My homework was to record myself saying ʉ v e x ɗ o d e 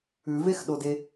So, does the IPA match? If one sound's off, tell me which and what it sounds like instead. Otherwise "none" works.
none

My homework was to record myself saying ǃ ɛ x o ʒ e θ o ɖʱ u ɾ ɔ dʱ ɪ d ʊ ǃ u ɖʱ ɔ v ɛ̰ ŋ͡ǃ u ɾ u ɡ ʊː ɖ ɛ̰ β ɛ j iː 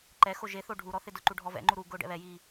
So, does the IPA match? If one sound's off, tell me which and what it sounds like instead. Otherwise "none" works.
dʱ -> θ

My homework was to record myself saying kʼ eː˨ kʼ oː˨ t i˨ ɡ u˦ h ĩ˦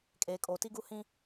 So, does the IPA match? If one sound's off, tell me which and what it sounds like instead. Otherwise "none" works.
i˨ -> i˦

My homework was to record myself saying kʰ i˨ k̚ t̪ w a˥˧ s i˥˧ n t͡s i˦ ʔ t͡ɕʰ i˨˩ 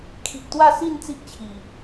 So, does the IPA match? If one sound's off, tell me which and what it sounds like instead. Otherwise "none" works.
none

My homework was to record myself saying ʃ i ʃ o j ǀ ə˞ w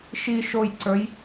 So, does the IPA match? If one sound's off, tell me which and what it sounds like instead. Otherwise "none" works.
w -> j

